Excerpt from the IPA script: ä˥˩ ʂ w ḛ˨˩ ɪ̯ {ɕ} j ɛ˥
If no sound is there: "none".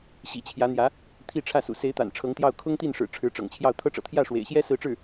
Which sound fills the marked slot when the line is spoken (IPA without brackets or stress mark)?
ɕ